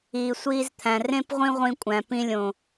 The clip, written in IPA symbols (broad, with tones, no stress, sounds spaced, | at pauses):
iː˨ sʷ iː˧ z t̪ʰ æ̃˨ r ẽ˦ p ʁʷ ĩ˦ ʁʷ ĩ˧ kʷʼ æ̃˨ p ĩ˧ lʲ õ˨